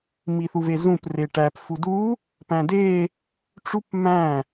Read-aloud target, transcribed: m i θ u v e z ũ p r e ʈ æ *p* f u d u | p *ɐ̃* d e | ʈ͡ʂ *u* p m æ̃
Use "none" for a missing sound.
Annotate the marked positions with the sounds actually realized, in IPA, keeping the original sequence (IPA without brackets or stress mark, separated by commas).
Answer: p, æ̃, u